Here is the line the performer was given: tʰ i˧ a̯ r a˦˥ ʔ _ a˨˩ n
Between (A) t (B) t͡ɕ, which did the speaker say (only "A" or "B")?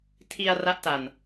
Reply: A